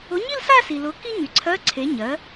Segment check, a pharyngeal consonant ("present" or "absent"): absent